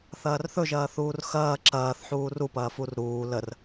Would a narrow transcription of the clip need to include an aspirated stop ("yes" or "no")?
no